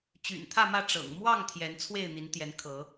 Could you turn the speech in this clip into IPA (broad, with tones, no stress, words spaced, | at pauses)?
t͡ɕy̰˨˩nt̪ʰä˥˨mä˥˨ ʈ͡ʂɤ̰˨˩ŋ mwɑ˥˨ŋ t̪ʰjɛ˨˦n t͡sʰwe˥˨ɪ̯n̪i˨˦nt̪jɛ˨˦n kʰɤ˨˦